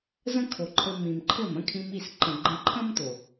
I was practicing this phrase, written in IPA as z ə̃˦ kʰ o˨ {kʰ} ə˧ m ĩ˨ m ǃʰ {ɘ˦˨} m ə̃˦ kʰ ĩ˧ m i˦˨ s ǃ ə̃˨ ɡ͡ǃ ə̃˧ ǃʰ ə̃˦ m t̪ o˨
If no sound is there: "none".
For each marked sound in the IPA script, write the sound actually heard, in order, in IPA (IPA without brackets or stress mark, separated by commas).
ǃʰ, ɘ˦˨